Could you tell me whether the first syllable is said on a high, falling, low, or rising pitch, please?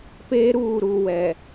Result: high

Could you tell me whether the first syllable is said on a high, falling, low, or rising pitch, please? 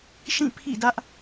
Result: falling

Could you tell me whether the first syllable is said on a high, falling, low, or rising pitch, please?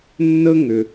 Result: high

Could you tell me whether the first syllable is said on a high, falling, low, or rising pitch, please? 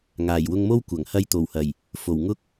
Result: low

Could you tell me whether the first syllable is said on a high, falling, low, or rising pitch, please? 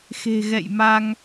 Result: low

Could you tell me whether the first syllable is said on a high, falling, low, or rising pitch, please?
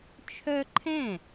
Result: high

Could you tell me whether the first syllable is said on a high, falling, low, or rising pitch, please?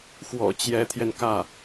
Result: low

